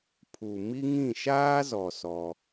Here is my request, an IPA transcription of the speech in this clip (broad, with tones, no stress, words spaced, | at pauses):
pʰu˨ mi˦ŋĩ˦˨ ʃaː˦zɔ˨ sɔ˦